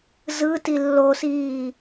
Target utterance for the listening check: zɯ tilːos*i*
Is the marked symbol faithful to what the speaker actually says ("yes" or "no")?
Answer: no